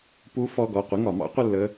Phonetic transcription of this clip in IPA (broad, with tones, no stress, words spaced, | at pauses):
pu˨˦ fɔ˩˧˩ɡɔ˩˧˩qʷi˩˧˩ŋ ɒ˧˩˧mɑ̰˦˥qʷə˦˨lːə˩˧˩